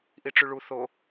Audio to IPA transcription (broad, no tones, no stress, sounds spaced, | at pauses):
ʔ i ʈ͡ʂ y ɭ u θ o